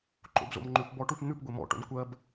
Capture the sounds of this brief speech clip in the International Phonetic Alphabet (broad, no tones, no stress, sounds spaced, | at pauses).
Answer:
ǃ o̰ b z o̰ m ŋ͡ǃ ʉ p b ɔ ʈ u p n̪ ʉ p ɡʷ e m ɔ̰ ʈ o̰ n kʷ ɜ b